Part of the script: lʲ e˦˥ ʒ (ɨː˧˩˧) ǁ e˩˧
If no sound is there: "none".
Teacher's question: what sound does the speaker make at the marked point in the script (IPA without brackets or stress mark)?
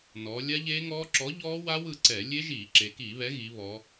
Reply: iː˧˩˧